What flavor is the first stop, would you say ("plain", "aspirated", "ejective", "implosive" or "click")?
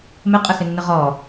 ejective